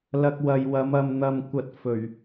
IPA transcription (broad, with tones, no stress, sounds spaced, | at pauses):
l ɐ˧ k̚ w ɐ˨ j w ɐ˨˥ m ɐ˨ m n̪ ɐ˨ m kʷ ɐ˨ t̚ f ɵ˨˩ ɥ